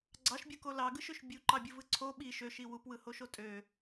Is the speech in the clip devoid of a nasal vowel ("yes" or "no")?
yes